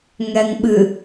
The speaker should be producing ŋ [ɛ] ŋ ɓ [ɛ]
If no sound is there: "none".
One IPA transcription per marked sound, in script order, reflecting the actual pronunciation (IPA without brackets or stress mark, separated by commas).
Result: ɛ, ɨ